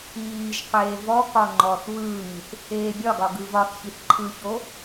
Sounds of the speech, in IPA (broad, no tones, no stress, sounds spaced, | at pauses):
iː ʒ qʷ eː v ɔ k ɒ ŋ͡ǃ ɔ θ β ɯː ŋ i θ | eː bʲ ɒ ɡ ɒ ɡ ɯ v ɒ θ ç i θ ǃʰ ɯ ç o